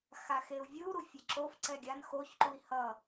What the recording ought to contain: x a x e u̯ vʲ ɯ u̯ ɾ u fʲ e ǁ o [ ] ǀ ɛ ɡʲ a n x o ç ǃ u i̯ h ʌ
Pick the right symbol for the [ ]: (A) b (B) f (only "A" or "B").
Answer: B